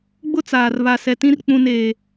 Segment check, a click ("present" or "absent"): absent